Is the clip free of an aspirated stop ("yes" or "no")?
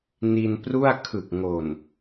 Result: no